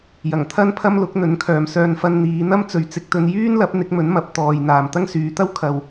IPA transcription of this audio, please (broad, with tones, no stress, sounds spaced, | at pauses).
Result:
j ɐ˨˩ ŋ t̪ʰ ɐ˥ n pʰ ɐ˥ m l ʊ˨˥ k̚ n̪ ɵ˨˥ n kʰ œː˨ m s œː˧ n f ɐ˧ n n̪ iː˨˧ n̪ ɐ˥ m t͡s ɵ˨˧ ɥ t͡s ɪ˨ k̚ t̪ ɵ˧ n j yː˥ n l ɐ˨˥ p̚ n̪ ɪ˨˥ k̚ m ɵ˨˥ n m ɐ˨ p̚ t̪ ɔː˨ j n̪ aː˨ m t̪ ɐ˥ ŋ s yː˨˧ t̪ ɐ˥ w kʰ ɐ˨ w